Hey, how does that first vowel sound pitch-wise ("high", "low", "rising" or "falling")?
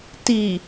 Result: low